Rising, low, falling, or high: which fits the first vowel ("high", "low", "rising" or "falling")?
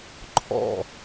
falling